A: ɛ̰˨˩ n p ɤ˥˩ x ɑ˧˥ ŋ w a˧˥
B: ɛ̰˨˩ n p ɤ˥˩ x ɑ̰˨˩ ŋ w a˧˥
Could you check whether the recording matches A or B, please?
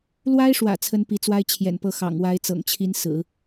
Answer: B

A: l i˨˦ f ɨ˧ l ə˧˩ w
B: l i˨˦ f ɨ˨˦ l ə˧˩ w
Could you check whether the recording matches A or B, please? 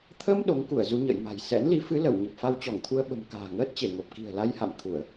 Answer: B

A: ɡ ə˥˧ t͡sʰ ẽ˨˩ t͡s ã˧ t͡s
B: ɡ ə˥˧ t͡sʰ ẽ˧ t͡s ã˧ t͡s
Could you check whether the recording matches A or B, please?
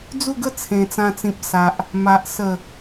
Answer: A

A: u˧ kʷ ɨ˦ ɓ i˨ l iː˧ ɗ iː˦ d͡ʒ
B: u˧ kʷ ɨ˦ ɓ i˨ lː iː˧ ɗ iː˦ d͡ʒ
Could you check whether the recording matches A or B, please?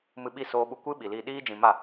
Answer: A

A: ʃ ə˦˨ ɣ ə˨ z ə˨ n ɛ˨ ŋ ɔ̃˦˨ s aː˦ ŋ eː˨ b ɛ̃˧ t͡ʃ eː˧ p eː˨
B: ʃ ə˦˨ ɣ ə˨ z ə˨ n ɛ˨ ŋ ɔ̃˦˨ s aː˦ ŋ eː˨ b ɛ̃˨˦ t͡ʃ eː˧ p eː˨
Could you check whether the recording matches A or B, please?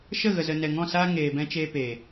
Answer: A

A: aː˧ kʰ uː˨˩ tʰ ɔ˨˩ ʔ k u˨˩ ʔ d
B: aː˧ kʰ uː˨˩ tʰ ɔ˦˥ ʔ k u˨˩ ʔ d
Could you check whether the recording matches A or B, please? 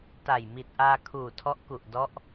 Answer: B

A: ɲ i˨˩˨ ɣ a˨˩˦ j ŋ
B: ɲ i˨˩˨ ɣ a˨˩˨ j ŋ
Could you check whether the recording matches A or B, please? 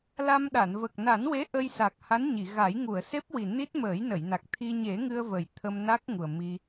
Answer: A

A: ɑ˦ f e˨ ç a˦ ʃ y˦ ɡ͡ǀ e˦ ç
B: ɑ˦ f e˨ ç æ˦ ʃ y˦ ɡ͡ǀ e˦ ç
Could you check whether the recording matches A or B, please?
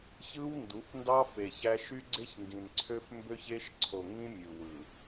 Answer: B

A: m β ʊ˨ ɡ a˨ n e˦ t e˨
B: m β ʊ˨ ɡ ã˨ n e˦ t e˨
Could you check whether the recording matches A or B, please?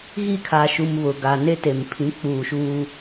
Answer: A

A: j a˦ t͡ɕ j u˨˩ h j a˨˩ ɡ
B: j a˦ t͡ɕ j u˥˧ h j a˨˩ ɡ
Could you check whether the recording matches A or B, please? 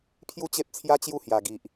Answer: B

